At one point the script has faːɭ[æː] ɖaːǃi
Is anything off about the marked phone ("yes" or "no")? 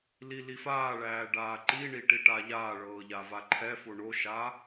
no